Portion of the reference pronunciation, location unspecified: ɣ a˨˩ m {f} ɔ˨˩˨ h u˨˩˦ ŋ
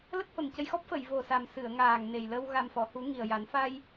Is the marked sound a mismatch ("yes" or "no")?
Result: no